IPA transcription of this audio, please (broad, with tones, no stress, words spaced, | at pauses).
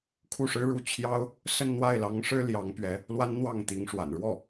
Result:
kʰu˥˩ʂɻ̩˥ɻu˥˩ t͡ɕʰjɑ˥ʊ̯ | sə˥˧nn̪wa˥˩ɪ̯lɑ˧˥ŋʂɻ̩˥ ljɑ˧˥ŋpɥɛ˧˥ | lwa˥nn̪wɑ˥˩ŋt̪i˧˥ŋʂwa̰˨˩n ɻwɔ˥˩